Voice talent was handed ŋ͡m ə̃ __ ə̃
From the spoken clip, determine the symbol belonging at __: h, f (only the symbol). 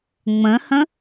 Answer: h